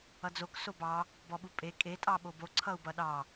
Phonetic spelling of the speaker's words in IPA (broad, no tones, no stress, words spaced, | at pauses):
ʌd͡zok sobɑ | bɔɓupʼe kʼe tʼɑɓobo ǀʰʌu̯bʌɗɑ